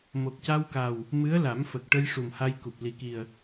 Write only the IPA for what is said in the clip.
mo˨˩k̚ca˧wka˨˩w | mɨ˧˥ə̯la˨˩˦mfə˨˩k̚ʈə˧j ʂu˨˩mha˧j ku˨˩p̚li˨˩ki˨˩ə̯

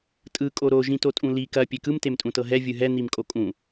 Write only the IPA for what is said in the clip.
tʼɯ kʼoɾo ʒĩtotʼũli kɐ pʲekɯm temtʼũtɤɦɛ vʲɯɦɛ n̪imkʼokʼũ

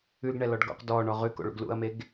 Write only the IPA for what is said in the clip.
ʉɡɳɛlɔɖ ɡɔ̰q dɔɳɔ ʁʉko̰ɭṵɡ lṵɐ̯meɡ

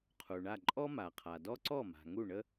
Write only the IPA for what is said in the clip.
qʰu˩ɳa˥˩ ǃʼɔ˥ma˩qʰa˩dɔ˥ ǀɔ˥˩ma̤˩ ŋu˥˩ɳə˥

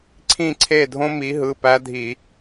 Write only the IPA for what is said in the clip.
ǀʰĩ˦˨ǀʰe˦˨dʱõ˦ mi˨˦ɦɯ˩˧˩pæ˦dʱi˧˩˧

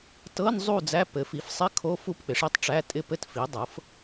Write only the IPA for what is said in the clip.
tɤ˧˥˧n zˤu˥˨d͡zæ˧˥˧ pɘ˩˥fi˩˥fsˤɪ˧˥˧ kʰo˧˥˧ fu˥˨pk͡pɪ˩˥ʂi˧˥˧tˤ ʈ͡ʂæ˧˥˧tʼɪ˥˨pɘ˥˨t fi˩˥dˤɤ˩˥f

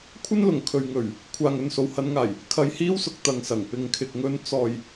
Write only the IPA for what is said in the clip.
kʷʰɐ˥nlʊ˨˩ŋ kʰɵ˨ɥŋɵ˨˩ɥ | kʷʰaː˨ŋɵ˨nso˨w hɐ˨˧nŋaː˨˩j | kʰɐ˧jhiː˥wsʊ˨k̚ t̪ɐ˨ŋsɐ˨˩ŋ pɪ˨ŋ kʰɪ˨k̚ŋɵ˧n t͡sɔː˨j

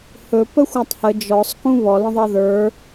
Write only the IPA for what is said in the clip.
hɵ pəxʷatˤhə d͡ʒɔsˤ kũβɔ lə̃ðˤʌðə˞

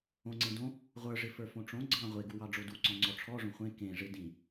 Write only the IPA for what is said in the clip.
õŋ͡ǀẽ dõ | ʁʷə˞ ʐɪfə˞fõʈ͡ʂõ ɡ͡ǀɑ̃ ʁʷeɡuwɑ ɖ͡ʐoduǀɔ̃ ŋ͡ǀɔʈ͡ʂʰɔʐõ χʷẽ kẽʐɪ dĩ

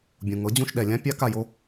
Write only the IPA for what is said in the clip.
bʲũ˩ŋɤ˩˥d͡ʑũ˧ʃ ɗɛ˩lʲã˥ pʲa˧ ka˥˩jo˥

